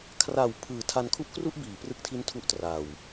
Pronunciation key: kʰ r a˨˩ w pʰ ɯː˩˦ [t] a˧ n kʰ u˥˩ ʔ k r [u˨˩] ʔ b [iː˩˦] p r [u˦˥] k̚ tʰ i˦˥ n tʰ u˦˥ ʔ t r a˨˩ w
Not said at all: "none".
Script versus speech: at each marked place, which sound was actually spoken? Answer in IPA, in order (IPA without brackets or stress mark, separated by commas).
tʰ, u˥˩, iː˩˦, ɯ˦˥